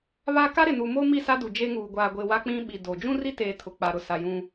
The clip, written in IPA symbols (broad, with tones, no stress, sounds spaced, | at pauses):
β aː˦ k a˦ ɾ ɪ˨ n u˨ m o˦ m i˦˨ s a˦ d u˨ d͡ʒ e˦ ŋ uː˨ ɡʷ aː˨ ɡʷ ɪ˨ w a˦ k͡p ĩ˦ ɓ i˨ d o˨ d͡ʒ ũ˦ r i˦ t eː˨ tʰ ʊ˨ k͡p a˨ ɾ ʊ˨ s a˨ j ũ˦